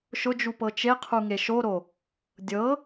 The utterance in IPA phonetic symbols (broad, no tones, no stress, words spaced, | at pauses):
ʃʊd͡ʒupɤ t͡ʃeqʰuŋe ʃoɾo | dʲɤ